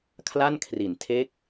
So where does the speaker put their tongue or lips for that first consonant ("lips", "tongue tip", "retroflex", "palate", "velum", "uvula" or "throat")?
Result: velum